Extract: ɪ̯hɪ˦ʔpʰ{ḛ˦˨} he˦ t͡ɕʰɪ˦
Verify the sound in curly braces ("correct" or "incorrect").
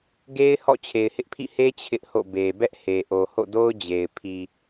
incorrect